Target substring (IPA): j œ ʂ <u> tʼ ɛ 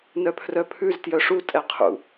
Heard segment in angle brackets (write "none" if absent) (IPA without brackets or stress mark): u